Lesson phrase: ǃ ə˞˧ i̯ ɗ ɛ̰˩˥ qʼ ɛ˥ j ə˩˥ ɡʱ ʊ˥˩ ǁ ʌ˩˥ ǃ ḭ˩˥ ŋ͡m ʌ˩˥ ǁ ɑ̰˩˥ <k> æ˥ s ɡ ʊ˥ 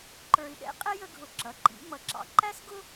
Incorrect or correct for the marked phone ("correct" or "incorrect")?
incorrect